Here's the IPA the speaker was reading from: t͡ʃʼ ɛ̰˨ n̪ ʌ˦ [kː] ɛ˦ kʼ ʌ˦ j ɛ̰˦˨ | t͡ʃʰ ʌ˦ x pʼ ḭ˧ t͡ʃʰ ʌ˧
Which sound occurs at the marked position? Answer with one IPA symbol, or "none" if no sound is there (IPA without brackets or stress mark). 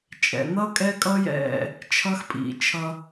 kʼ